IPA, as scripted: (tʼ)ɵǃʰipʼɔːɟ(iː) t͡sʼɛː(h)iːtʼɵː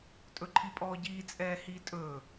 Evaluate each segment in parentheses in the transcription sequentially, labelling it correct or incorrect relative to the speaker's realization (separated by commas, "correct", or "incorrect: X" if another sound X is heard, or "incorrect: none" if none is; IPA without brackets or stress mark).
correct, correct, correct